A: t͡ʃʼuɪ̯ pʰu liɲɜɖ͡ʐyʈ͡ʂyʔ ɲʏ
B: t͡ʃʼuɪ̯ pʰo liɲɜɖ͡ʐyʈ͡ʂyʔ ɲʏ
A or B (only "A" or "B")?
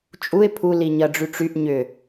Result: A